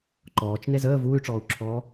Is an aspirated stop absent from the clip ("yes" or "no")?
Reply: no